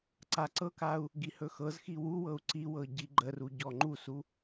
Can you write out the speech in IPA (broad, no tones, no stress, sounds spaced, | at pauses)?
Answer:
ǀ a ǀ ɤ k a u̯ | ɡ i h ɵ x ɤ z x i w u w ɤ u̯ ǀ i w ɤ ɟ i ɡ͡ǃ ə r u ɟ ɔ ŋ͡ǃ u s u